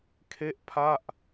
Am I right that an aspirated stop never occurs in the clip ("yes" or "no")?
no